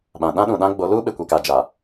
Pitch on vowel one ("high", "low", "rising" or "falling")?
low